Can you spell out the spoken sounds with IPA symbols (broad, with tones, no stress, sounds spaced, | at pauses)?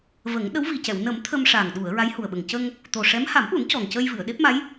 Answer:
v ə˨˩˦ ŋ ɗ ə˧˥ w v i˨˩ c ɛ˨˩˨ w n ə˨˩˦ m t̪ʰ ə˧ m ʂ a˨˩ ŋ ɗ u˨˩˨ ə̯ ɹ a˧˥ j h u˨˩ ə̯ ɓ ə˨˩ ŋ c ə˧ ŋ | t̪ o˨˩ ʂ ɛ˧˥ m h a˨˩˦ m ʔ u˨˩˦ n c ɔ˨˩ ŋ c ə˧ j v ɨ˨˩˨ ə̯ ɗ e˦˥ p̚ m a˧˥ j